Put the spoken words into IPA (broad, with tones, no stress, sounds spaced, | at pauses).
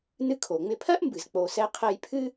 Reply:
n ɨ˧ kʰ o˩ ŋ͡m ɪ˧ pʰ ɜ˥ ʔ m b ɨ˩ z k͡p o˩ s ɛ˧ qʰ ɛ˧ j pʰ ɨ˥